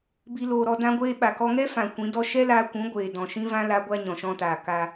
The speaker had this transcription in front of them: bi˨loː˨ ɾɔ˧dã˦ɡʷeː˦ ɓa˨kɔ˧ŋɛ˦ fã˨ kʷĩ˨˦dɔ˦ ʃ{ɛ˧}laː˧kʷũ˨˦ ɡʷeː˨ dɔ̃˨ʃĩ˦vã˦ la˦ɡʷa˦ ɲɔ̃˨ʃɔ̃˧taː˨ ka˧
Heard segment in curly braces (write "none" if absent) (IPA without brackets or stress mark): ɛ˦